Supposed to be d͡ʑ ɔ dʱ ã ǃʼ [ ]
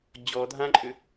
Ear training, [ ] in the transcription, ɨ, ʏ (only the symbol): ʏ